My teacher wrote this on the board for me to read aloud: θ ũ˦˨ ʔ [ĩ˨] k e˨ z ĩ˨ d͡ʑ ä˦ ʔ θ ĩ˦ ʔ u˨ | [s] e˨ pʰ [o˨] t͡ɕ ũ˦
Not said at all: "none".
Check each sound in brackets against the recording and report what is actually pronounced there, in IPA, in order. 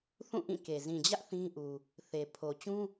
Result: ĩ˦˨, θ, o˨

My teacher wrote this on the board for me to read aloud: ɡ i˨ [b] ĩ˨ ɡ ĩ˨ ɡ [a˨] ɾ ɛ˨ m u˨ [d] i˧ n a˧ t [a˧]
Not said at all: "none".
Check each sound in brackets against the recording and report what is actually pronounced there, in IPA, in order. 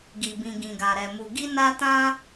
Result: b, a˨, ɡ, ã˧

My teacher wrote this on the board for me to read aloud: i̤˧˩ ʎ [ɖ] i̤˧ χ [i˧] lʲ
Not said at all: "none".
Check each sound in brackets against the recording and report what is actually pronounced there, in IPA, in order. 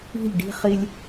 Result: ɖ, i˧

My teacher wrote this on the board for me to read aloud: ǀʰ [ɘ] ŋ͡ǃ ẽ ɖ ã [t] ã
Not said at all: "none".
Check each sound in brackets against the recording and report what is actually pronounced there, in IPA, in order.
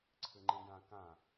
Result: ɘ, k

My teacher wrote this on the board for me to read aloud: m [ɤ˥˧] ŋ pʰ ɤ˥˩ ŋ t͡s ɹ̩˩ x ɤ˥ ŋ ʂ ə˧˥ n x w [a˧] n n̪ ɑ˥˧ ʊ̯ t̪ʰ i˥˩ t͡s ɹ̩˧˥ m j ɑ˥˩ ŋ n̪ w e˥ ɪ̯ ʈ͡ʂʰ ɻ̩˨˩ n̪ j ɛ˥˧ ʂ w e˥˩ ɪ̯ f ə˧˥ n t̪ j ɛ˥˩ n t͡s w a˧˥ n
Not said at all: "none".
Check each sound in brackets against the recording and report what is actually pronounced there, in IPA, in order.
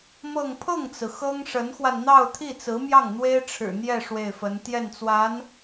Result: ɤ˥˧, a˧

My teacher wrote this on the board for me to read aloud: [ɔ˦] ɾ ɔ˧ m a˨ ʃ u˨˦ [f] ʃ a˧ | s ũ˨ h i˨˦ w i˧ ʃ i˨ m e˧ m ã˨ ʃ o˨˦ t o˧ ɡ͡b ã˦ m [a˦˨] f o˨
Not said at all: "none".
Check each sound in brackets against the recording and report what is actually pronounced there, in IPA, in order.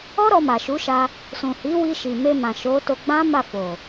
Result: ɔ˦, none, a˦˨

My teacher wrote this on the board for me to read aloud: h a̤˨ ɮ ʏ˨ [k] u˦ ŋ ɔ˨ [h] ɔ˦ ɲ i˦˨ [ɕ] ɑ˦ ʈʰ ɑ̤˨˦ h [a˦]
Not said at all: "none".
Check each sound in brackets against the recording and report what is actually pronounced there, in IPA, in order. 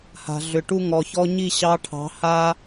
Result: ʈ, ç, ɕ, a˦

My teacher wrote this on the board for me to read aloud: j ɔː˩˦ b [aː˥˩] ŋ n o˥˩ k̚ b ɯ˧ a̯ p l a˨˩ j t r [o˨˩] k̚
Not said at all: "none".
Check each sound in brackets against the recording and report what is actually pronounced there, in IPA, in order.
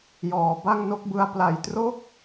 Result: a˥˩, o˥˩

